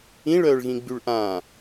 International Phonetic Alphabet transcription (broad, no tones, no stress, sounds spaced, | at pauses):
ĩ ɭ œː ɭ ɣ ĩ ɡ͡b y ɭ ʔ ã